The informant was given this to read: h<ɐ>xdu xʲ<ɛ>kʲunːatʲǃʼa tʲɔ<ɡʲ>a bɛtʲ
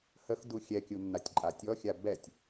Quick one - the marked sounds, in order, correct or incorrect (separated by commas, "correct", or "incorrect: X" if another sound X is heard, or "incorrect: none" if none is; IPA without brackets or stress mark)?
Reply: incorrect: ə, correct, incorrect: xʲ